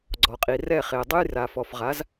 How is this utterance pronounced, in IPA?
ɡ͡ǀ ɔ˩ qʼ i˩ r ɛ˥˩ χ e˩ dˤ ʊ˥ j r a˩ f ɔ˩ f ʁ a˩˥ z

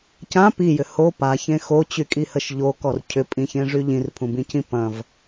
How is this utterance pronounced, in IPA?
c ã p i j ʏ h o p a ç ẽ x o t͡ɕ y kʼ i h ə ʃ ʎ o k ɔ r cʰ ʏ pʼ ĩ ç ẽ ʐ y ʎ ĩ r pʰ ũ b ĩ c ĩ p ɐ̃ v

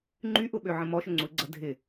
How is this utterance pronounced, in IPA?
ŋ͡ǃ y ʔ ʊ ɓ ø ʕ ə̃ m ɔ ʃ ʊ ŋ͡ǀ u ɪ̯ ɡ͡ǀ ɐ dʱ ɪ

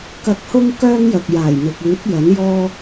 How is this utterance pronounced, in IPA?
k ɐ˧ k̚ h ʊ˥ ŋ k œː˥ ŋ j ɐ˨ k̚ j aː˨˩ j n̪ ɪ˨ k̚ yː˨˥ t̚ j ɐ˨˥ n j ɔː˥

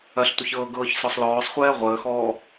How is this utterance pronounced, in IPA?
ɐ ɬ tʷ ə ç ɤː ɡ ɤː ç s ɔ sˤ l ɔː sˤ χʷ ɛː ʁʷ əː x ɔː

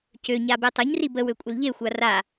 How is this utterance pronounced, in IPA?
c ø ɲ a b e tˤ ɘ ɲ r i b ə w ø kʷʼ ɘ l ʎ e xʷ a r a

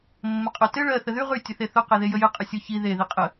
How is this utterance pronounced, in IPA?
mː ə qʼ ʊ t ɘ ɭ ɜ θ ə ð y ʁ y tʲ ɘ θ e θ ʊ q e ð e j ə j ɘ qʼ ə sʲ ʊ ç i ð e ð i qʼ ə

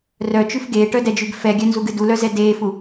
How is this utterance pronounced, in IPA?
r œ t͡ʃ ʉ f ɡ eː ʈ œ d ɛ d͡ʒ ʉ ɡ f ɛ ɡʲ œ n z u ɡ ɨ d u l œ z ɛ d eː f u

